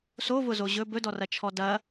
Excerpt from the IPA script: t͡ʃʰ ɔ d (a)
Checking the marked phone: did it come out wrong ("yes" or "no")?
yes